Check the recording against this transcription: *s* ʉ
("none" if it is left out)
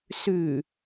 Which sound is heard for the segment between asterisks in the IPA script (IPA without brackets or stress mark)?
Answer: s